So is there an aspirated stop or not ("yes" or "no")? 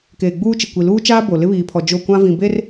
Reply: yes